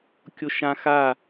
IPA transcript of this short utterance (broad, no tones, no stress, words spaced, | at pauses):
kʲoʃã xa